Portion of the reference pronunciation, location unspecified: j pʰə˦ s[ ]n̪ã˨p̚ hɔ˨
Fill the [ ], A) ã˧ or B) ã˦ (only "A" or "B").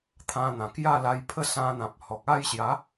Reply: A